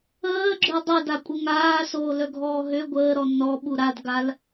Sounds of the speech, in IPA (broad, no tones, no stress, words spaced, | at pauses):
əːɡ͡ǁø dˤødakʷʼə ŋaːsoːlœɡʱɔː ɦø ɡʷəːɾɔ nɔɓu ɾadɡal